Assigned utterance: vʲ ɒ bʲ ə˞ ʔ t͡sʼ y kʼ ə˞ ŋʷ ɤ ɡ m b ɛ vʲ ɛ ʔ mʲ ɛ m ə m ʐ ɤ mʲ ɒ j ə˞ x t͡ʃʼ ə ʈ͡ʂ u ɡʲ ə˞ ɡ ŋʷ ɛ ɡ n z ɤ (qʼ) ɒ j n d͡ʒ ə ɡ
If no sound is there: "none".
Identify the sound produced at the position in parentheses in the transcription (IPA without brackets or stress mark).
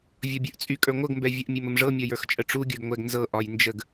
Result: ʔ